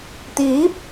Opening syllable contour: rising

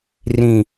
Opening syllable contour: low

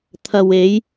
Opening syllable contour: low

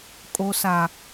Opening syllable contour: low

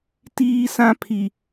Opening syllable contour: high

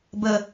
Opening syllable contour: low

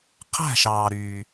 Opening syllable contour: falling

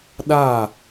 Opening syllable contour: falling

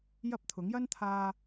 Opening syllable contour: high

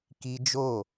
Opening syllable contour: high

